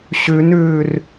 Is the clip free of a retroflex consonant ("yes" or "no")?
yes